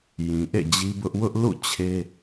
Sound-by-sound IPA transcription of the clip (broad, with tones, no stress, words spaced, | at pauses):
jĩ˨ʔḛ˦˨d͡ʑi˦bʊ˦ʔ wʊ˦ʔlṵ˦˨ t͡ɕʰe˦